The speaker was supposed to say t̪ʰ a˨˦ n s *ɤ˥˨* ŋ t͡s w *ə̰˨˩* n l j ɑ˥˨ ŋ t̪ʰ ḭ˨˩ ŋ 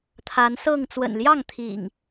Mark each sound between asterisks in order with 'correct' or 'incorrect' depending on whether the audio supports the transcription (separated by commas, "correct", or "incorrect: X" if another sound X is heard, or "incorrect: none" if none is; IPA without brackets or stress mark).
correct, correct